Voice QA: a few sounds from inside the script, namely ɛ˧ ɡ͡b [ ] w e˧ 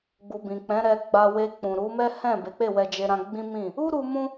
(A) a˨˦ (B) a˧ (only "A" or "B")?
B